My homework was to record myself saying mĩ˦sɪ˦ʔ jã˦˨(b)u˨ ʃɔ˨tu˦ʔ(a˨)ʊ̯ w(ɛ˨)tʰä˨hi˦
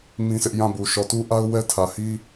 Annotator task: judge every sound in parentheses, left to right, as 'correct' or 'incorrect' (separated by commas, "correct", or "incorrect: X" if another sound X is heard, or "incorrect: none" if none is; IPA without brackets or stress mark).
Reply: correct, incorrect: a˦, incorrect: ɛ˦